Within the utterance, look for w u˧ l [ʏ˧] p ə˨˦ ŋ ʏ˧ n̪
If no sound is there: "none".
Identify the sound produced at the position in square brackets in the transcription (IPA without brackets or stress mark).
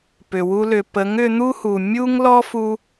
ʏ˨